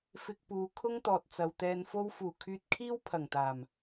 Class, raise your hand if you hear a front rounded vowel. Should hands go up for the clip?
yes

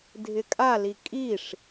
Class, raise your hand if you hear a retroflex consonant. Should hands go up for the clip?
yes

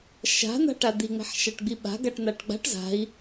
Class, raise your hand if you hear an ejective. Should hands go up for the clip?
no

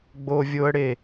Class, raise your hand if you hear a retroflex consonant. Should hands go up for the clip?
yes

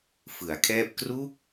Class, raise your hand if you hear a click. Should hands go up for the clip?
no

